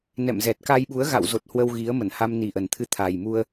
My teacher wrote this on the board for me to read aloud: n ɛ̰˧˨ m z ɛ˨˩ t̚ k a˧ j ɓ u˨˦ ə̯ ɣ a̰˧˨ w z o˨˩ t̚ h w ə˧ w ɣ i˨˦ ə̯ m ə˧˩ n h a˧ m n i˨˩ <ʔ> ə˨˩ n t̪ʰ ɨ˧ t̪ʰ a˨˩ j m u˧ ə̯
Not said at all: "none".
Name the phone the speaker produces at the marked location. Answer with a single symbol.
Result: ʔ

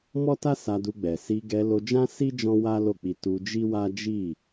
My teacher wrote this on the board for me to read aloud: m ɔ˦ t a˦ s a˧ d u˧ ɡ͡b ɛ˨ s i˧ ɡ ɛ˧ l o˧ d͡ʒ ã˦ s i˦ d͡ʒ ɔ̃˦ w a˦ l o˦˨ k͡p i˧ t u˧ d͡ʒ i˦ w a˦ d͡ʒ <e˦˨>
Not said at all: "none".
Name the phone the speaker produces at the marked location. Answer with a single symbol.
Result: i˦˨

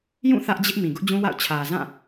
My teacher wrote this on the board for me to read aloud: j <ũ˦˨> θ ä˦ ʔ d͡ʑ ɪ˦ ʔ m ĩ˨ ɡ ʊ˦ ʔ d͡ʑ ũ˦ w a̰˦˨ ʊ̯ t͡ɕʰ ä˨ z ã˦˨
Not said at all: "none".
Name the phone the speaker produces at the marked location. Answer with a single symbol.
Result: ũ˦˨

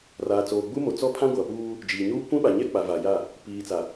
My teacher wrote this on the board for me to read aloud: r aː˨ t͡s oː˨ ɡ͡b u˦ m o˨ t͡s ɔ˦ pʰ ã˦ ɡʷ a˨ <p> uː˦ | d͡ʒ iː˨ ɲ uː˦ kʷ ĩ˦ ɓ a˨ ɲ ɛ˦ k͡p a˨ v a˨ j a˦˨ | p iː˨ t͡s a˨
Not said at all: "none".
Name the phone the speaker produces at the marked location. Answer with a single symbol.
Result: p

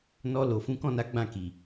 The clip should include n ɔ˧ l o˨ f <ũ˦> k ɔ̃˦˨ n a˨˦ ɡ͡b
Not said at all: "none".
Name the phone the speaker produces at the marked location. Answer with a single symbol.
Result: ũ˨˦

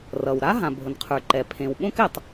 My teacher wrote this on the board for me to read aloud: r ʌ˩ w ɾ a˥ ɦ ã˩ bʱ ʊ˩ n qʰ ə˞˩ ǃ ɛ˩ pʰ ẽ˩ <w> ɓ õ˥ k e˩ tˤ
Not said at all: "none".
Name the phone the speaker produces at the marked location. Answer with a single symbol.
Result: w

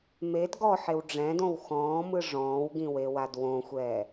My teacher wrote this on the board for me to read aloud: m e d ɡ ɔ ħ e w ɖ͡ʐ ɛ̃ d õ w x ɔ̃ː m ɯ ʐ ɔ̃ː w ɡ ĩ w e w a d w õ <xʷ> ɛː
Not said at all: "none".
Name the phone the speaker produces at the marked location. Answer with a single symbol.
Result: xʷ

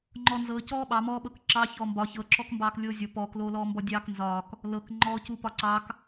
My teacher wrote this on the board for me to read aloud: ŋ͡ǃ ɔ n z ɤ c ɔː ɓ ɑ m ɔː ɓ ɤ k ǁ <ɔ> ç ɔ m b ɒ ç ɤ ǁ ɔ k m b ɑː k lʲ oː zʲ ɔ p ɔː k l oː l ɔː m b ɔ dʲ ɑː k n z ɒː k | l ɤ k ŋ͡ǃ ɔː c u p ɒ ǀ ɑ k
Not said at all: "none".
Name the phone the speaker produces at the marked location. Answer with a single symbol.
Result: ɑ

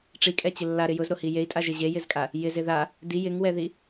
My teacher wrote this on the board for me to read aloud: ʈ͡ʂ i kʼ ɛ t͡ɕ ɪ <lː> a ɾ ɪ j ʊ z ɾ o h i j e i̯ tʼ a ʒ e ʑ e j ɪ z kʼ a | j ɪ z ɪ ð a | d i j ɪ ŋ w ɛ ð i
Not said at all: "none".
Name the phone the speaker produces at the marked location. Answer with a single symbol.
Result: lː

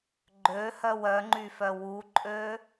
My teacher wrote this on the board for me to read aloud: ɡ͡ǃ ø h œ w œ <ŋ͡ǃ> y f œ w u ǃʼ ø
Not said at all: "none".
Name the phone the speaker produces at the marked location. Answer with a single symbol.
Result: ŋ͡ǃ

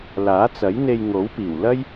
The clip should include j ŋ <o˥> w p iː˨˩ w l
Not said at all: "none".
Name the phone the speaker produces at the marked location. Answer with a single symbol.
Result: o˨˥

